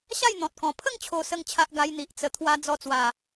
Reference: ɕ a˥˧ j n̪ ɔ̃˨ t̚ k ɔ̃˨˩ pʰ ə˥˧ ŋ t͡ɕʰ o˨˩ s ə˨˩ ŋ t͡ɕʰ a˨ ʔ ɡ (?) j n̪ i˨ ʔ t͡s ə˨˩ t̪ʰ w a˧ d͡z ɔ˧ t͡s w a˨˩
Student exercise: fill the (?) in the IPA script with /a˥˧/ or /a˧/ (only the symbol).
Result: a˧